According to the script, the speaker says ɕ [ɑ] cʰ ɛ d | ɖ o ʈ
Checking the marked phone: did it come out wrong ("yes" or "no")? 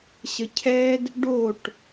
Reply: yes